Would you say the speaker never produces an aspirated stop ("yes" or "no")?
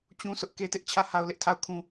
no